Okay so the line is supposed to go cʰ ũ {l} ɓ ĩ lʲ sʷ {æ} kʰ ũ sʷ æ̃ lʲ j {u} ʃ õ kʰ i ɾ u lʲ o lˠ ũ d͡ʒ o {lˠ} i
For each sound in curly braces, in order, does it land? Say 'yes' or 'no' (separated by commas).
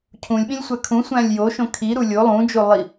no, yes, no, yes